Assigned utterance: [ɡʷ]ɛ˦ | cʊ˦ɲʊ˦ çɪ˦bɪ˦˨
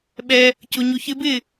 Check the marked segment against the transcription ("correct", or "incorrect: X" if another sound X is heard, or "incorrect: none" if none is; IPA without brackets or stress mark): incorrect: ɓ